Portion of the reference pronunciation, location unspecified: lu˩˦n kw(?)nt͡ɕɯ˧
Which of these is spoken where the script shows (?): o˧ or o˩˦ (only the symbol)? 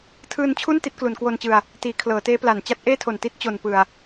o˧